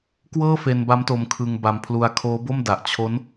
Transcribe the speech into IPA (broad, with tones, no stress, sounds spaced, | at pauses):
k w ɤː˥˩ f e˧ n b a˦˥ m t o˧ m kʰ ɯ˧ ŋ b a˧ m pʰ l u˧ a̯ kʰ oː˦˥ b o˥˩ m d a˨˩ ʔ t͡ɕʰ o˦˥ n